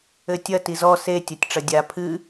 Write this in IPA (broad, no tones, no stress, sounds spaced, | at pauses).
ɘ tʲ ɐ t i z ɔ s e tʲ ɐ tʲ ʈ͡ʂ ɐ dʲ a pʰ ɨ